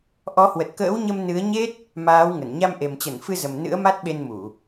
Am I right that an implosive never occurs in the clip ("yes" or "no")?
no